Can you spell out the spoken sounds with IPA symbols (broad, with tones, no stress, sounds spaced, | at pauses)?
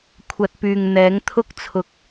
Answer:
kʷʰ ɐ˧ t̚ p yː˨ ŋ n̪ ɛː˨˥ ŋ t̪ʰ ʊ˥ k̚ t͡sʰ ʊ˧ k̚